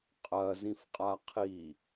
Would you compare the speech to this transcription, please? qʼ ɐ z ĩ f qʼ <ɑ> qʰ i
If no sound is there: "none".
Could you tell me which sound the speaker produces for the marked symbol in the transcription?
a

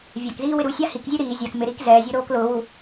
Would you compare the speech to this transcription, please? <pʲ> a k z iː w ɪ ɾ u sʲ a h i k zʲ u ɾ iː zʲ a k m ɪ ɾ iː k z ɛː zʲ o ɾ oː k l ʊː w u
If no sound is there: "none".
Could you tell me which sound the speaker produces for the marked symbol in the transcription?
vʲ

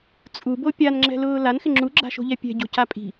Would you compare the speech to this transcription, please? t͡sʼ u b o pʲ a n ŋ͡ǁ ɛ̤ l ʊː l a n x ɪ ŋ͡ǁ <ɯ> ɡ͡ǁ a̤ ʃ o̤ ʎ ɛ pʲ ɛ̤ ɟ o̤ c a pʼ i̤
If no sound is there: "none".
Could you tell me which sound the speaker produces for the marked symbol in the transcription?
u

